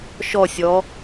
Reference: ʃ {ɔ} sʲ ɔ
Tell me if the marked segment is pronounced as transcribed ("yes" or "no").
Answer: yes